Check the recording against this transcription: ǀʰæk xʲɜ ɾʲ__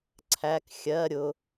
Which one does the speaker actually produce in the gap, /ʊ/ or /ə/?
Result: ʊ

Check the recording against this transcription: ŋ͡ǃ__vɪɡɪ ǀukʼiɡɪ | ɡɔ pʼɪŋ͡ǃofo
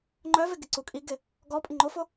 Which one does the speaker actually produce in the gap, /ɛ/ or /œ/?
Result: œ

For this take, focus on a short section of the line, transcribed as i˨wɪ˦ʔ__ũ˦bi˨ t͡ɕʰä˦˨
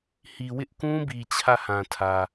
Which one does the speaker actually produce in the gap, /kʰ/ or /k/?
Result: k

